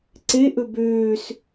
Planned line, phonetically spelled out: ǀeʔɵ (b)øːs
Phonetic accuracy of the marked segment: correct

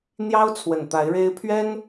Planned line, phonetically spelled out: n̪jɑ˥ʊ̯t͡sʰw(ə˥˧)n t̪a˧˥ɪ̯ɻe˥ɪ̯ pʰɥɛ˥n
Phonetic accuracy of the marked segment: incorrect: ə˨˩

